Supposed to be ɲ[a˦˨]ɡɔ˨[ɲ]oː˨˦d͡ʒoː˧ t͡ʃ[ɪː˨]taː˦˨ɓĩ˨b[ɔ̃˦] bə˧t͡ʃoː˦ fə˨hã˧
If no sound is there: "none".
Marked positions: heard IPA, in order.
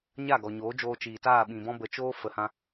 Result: a˦˨, ɲ, iː˨, ɔ̃˦

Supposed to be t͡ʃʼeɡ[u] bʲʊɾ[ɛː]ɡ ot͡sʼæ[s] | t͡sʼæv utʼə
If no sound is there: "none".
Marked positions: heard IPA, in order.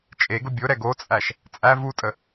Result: ʊ, ɛ, ʃ

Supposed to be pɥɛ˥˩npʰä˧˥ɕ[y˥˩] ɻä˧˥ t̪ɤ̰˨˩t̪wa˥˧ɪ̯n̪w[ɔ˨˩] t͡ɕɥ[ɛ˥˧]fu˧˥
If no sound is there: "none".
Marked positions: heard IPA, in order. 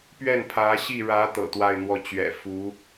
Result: i˥˩, ɔ˥˩, ɛ̰˨˩

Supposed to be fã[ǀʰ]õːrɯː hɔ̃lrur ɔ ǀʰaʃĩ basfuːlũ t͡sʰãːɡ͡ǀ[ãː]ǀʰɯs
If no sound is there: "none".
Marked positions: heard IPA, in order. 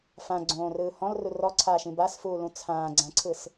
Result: ɡ͡ǀ, ã

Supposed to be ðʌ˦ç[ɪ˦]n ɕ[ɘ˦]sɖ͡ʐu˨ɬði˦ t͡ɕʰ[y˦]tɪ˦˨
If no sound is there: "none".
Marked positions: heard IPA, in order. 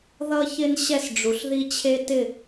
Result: ɪ˦, ɛ˦, e˦

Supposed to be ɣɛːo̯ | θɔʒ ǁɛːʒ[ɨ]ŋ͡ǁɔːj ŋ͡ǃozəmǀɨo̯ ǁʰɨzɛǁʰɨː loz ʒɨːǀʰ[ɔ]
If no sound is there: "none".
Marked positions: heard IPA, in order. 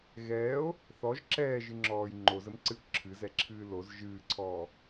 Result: ɨ, ɔː

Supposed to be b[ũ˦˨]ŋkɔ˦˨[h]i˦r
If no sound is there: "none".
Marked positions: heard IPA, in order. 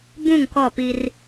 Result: ũ˦˨, p

